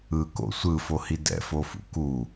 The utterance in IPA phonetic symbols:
ɯ k o̰ sʷ ɯ f o h i d ɛ̰ f o f ṵ k u

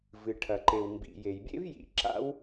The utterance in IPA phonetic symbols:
v ɨ˩ ʈʰ ɐ˩ ǃ e˩ w m b ḭ˩ j e˩ j bʲ ḛ˥ v j ḭ˩ ǁ a̰˥ w

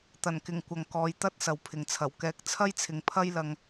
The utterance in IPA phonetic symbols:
t̪ ɐ˨˩ n k ɪ˨˩ ŋ kʷ ɐ˨ ŋ k ɔː˨˧ j t̪ ɐ˥ t̚ s ɐ˨ w pʰ ɪ˨ ŋ t͡sʰ ɐ˨˩ w k ɛː˨˥ k̚ t͡sʰ ɐ˥ j t͡sʰ ɪ˨˧ ŋ pʰ ɐ˥ j l ɐ˧ ŋ

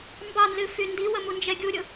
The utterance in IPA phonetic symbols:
m b ɑ n z ɨ f y n d i w ə m u n d͡ʒ ɛ ɡʲ u ɾʲ ʊ

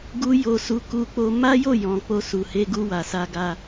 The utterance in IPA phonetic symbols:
ɡ u˧ j o˧ s u˧ k u˧ k͡p o˧ m a˦ j o˦˨ j ɔ̃˨ k͡p o˧ s u˨ h e˧ ɡ u˧ w a˨ s a˧ ɡ a˧

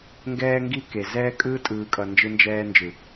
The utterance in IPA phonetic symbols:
ŋ ɡ ɛː˦ ŋ ɡ i˦ k e˨ z ɛː˦ kʼ ɯː˦ tʼ ɯː˨ kʼ ʌ˨ n d͡ʒ ɯ˦ n d͡ʒ ɛː˦ n d͡ʒ ɯ˨

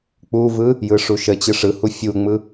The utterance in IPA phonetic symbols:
k͡p u v ɯ | j ɯ ʂ u ʃ ə t͡ɕ ɯ ʂ ɯ h u fʲ u ŋ͡m ɯ

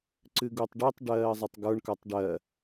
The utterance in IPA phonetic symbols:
ǀ ɨ ɡ u tˤ ɖ ɨ tˤ ɖ ɜː zˤ ə tˤ ɡ ə˞ ɳ k ə˞ tˤ ɖ ɜ

